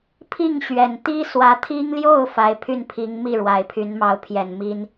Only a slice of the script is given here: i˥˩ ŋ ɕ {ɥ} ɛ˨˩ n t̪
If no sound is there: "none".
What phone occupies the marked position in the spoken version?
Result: ɥ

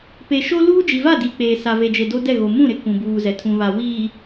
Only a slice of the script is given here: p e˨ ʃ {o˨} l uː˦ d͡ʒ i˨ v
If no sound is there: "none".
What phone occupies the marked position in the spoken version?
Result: o˦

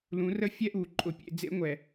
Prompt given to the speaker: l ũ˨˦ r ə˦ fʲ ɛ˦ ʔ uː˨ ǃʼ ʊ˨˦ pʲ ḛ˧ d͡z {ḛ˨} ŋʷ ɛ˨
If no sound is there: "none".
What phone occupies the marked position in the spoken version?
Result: ḛ˦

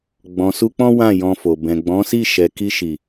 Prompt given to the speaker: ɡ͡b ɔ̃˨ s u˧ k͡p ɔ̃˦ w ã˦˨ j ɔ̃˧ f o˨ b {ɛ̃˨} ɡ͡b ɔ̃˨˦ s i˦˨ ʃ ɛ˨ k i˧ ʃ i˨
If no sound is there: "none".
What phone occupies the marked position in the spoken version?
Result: ɛ̃˨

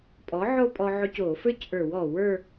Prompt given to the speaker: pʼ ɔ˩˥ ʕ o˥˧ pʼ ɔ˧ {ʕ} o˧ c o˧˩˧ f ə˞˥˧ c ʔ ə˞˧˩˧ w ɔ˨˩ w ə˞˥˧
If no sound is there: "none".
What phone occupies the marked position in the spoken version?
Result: ʕ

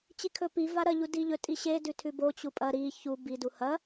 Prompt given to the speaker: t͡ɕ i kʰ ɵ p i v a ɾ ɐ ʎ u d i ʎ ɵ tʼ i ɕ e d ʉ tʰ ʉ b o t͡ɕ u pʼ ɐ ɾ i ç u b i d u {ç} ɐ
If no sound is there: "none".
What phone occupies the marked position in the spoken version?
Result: h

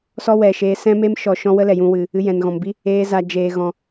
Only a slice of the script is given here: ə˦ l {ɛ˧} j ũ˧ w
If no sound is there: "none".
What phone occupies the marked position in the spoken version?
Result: ɛ˨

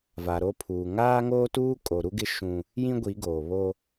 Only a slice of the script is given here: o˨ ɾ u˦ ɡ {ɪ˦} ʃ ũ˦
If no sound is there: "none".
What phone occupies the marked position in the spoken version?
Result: ɪ˦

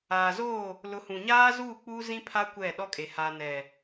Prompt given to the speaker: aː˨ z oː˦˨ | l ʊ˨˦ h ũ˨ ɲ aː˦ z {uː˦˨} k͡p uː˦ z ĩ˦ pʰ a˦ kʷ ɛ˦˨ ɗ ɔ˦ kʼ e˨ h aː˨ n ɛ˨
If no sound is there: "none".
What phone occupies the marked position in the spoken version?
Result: uː˦˨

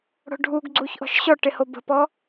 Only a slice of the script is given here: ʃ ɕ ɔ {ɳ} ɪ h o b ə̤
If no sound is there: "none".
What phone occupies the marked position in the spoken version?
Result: ʈ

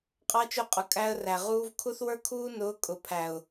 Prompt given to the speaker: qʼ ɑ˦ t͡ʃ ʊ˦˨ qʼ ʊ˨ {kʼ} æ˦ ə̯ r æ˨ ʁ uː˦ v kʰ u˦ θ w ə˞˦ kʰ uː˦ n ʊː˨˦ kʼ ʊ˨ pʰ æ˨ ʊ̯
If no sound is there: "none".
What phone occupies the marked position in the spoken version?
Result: kʼ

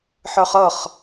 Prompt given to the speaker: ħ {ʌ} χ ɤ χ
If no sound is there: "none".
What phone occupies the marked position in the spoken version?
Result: ə˞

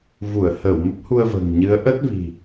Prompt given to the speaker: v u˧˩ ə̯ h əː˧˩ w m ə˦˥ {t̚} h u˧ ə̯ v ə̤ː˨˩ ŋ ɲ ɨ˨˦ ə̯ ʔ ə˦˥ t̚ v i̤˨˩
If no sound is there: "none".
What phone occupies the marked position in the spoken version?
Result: p̚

